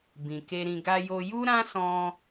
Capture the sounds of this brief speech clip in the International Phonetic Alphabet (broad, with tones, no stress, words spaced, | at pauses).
bĩ˨ke˧ɾĩ˧ ɡa˧jo˧ ju˦ɾã˦sɔ̃˧